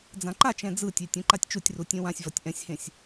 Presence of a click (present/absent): present